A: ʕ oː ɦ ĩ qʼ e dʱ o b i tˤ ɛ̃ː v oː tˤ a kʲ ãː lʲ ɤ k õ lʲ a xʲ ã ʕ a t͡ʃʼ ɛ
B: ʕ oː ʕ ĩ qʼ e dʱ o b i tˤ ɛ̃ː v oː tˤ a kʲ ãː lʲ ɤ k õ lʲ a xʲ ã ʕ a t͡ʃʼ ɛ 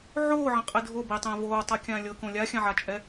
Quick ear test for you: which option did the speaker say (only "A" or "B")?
B